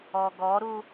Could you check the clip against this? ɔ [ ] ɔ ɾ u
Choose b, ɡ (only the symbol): ɡ